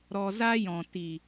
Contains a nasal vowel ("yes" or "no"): yes